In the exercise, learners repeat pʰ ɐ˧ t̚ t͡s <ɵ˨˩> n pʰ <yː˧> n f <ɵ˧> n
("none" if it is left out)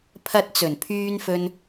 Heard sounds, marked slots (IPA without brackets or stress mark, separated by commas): ɵ˨˩, yː˧, ɵ˧